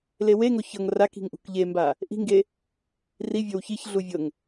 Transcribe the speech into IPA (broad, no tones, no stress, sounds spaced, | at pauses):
l e w e ŋ o ç ɤ ŋ r a k i̤ ŋ ʔ ṳ k ʎ e m b a | ʔ i̤ ŋ ɡ e | r i vʲ ɤ w ç i ç ɮ u vʲ ɤ ŋ